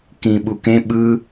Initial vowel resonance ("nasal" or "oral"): nasal